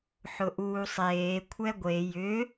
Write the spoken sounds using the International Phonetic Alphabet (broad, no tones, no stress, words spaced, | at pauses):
ħʊʔuːsˤeː kʷʰɛɡʷe jʏ